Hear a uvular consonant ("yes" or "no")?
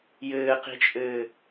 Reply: yes